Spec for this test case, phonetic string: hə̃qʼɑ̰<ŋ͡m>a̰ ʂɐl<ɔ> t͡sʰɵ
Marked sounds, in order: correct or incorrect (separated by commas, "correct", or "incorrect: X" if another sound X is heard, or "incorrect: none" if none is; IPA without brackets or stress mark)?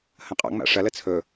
correct, incorrect: ə